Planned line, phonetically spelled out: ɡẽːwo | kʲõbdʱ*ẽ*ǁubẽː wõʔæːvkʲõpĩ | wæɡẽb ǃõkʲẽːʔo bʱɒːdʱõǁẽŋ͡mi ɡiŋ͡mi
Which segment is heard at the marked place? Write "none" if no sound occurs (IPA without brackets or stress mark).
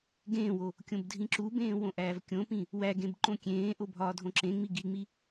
ĩ